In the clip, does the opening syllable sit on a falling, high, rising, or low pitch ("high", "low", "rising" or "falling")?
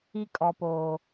high